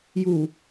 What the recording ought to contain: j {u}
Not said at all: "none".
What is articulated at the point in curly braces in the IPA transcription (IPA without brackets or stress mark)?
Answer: u